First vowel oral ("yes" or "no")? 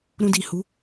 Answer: no